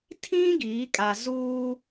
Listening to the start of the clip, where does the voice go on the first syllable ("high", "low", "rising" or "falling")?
high